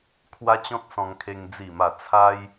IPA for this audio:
kʰ w a˦ t͡ɕ ɔ̃˦ t̚ s ɔ̃˧ ŋ kʰ e˧ ŋ d͡z i˥˧ m a˥˧ t͡sʰ a˦ j

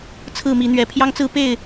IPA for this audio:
t͡sʰ ɹ̩˥˨ m i˨˦ n̪ ɥ ɛ˨˩ pʰ j ɑ˦ ŋ t͡s ɹ̩˦ p e˥˨ ɪ̯

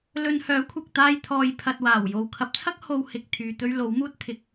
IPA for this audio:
l ɵ˧ n h œː˨˥ kʷʰ ɐ˨ k̚ t̪ aː˧ j t̪ʰ ɔː˨ j pʰ ɐ˨ t̚ w aː˨˩ w j o˨ w kʰ ɐ˨˥ p̚ t͡sʰ ɐ˥ k̚ h o˧ w h ɪ˨ k̚ t̪ʰ yː˨ t̪ ɵ˥ ɥ l o˨˥ w m uː˥ t̚ t̪ʰ ɪ˨ k̚

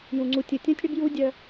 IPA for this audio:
j ũ˨ ŋ͡ǀ u˨ tʲ ɯ˨ tʲ õ˦ tʲ ɽ ʏ˦ b j u˦ dʲ œ˦

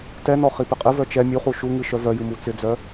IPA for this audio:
t ɛ n ɔ χ i p ɪ qʼ ɨ v œ t͡ʃ ɛ mʲ u χ u ʃ u ŋ ɨ ʃ œ v œ j ɨ m u t͡s ɪ d͡z œ

